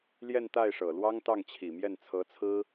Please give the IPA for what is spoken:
ljɛ˥˧nt̪a˥˩ɪ̯ʂɤ˨˩lwɑ˥ŋ t̪ɑ˥˩ŋt͡ɕʰi˨˩mjɛ˥˩n t͡sʰɤ˧˥t͡sʰɹ̩˥

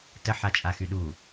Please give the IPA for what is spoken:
tə ħat͡ʃʼaxyɗu

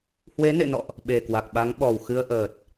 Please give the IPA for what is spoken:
hwe˨˦nḛ˧˨nɔ̰˧˨ʔ | ɓe˨˩kwa˨˩k̚ɓa˨˦ŋɓɔ˨˩w xɨ˧ə̯ʔəː˨˩t̚

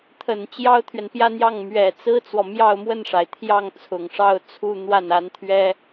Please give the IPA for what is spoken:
t̪ʰə˨˩n t͡ɕjɑ˥ʊ̯t̪ʰɥɛ˨npjä˥˧n̪jɑ˥˩ŋ mɥɛ˨˩t͡sɹ̩˥t͡swɔ˨ mjɑ˥˧ʊ̯mwə˥˩nʂa˩ɪ̯t̪ʰjɑ˥˩ŋ t͡sʰʊ˨˩ŋʂɑ˥˧ʊ̯t͡sʰu˥˧n̪wa˥˩n a˧˥nt̪ʰɥɛ˥

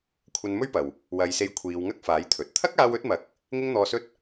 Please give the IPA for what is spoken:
kʷʰɐ˧nmɵ˥ɥpɐ˨w | wɐ˨˧jse˧jkʷʰiː˨˧w ŋɐ˥k̚faː˨˥j t̪ʰɵ˨˥t̚ t̪ʰɐ˥k̚aː˧wɵ˨˥t̚mɐ˨˥k̚ | ŋɪ˥ŋn̪ɔː˧sɵ˥t̚

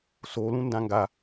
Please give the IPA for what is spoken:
so lũndãŋɡa

